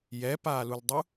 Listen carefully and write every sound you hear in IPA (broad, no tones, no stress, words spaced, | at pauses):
jɛpaːluldˤu